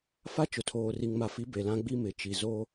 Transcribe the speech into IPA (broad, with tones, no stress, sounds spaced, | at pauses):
f a˦ t͡ʃ ʊ˨ tʰ oː˨ r i˨ ŋ m a˨ f i˨˦ b e˨ l ã˦ ɡ͡b i˦ m ɪ˨ t͡ʃ i˨ z o˦